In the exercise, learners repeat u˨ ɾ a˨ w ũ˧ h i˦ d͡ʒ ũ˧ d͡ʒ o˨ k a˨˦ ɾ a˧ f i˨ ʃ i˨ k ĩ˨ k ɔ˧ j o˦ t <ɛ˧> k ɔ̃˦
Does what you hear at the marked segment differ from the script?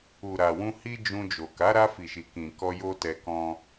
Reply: no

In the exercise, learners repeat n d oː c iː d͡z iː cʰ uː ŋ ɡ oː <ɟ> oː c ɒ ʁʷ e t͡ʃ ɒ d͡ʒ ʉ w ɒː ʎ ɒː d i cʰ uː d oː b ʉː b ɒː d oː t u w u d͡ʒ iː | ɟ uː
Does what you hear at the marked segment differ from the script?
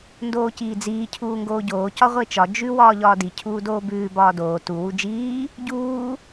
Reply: no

